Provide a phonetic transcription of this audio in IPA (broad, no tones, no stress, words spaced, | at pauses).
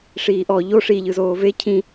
ʂiːʔɔ ʎo ʂi ʎɯzoːve cʰĩ